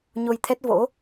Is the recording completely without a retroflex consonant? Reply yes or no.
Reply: yes